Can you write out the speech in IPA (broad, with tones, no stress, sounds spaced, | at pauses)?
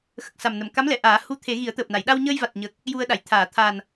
x ə˨˩ k̚ s a˨˩ m n ə˨˩˨ m k a˧˥ m l ɛ˨˩˨ ʔ aː˨˩˦ h u˧˥ t̪ʰ e˨˩˦ ɣ i˨˩˦ ə̯ t̪ əː˨˩ p̚ n a˨˩˨ j ɗ a˧ w ɲ əː˧ j v a˨˩ t̚ ɲ ə˨˩ k̚ | j u˧ ə̯ ɗ a˨˩˨ j t̪ʰ aː˨˩˨ t̪ʰ a˨˩ n